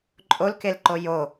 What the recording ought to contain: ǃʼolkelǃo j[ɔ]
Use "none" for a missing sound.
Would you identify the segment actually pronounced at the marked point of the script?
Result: o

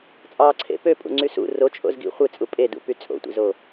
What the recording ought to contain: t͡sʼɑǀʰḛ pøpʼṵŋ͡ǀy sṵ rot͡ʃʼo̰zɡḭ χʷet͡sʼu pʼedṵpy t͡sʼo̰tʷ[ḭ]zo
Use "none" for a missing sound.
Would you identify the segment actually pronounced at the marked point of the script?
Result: ḭ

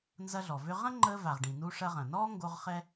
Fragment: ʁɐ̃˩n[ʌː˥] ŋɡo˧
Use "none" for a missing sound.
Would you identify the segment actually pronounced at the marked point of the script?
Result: ɔː˥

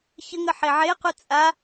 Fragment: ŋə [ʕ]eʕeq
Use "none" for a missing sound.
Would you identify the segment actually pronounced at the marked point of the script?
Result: ħ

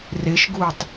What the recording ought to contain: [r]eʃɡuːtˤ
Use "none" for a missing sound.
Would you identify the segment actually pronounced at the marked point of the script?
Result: r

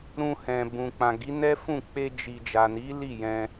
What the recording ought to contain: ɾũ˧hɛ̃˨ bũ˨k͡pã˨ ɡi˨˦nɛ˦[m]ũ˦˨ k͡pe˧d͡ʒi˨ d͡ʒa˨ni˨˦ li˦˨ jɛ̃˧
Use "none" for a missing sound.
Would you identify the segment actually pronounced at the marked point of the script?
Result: f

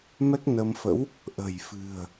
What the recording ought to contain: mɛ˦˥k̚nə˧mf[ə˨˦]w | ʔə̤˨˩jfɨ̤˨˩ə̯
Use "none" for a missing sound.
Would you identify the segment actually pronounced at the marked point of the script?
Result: ə̰˧˥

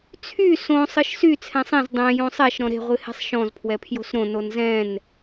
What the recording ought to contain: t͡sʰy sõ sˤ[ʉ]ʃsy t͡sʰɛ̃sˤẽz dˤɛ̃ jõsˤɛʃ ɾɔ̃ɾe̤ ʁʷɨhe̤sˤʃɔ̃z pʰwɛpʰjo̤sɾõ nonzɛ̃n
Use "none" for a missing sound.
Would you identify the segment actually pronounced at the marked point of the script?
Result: ɨ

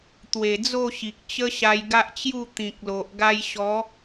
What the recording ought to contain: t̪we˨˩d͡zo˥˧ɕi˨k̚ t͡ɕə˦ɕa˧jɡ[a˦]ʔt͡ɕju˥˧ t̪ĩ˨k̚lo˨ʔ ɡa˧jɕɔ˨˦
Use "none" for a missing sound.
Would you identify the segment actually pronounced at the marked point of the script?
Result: a˦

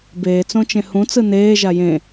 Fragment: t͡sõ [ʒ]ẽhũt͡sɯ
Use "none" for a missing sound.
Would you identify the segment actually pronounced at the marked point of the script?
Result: t͡ʃ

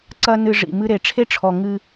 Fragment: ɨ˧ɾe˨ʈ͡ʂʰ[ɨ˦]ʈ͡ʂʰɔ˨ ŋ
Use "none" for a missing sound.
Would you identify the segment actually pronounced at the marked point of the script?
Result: e˦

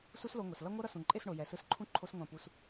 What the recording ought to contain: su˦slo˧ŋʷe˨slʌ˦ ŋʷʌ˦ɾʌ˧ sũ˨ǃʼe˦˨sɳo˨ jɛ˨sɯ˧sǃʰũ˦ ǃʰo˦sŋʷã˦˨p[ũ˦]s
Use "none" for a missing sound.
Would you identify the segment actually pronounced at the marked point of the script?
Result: u˦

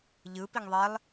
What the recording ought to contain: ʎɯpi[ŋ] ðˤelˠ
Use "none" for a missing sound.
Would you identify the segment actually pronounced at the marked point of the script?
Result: ŋ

